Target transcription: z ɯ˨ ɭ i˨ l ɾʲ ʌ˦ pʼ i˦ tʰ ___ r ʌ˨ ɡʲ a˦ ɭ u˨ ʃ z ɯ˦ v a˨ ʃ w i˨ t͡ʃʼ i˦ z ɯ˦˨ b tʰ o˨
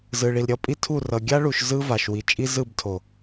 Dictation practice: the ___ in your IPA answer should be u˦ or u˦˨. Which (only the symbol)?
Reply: u˦˨